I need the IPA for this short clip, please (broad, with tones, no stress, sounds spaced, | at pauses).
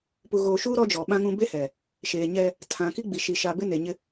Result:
p u˨ ɣ oː˨ ʃ uː˦ ɾ ɔ˦ d͡ʒ ɔ˨ ɓ ã˦ ŋ ũ˦ b e˦ h ɛ˨ | ʃ eː˨ ɲ ɛ˦ | tʰ ã˨ k i˦ ɡ͡b i˨ ʃ i˨ ʃ a˨ b ɪ˦ n e˨ ɲ ɪ˦